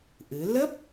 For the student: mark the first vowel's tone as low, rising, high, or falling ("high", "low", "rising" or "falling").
rising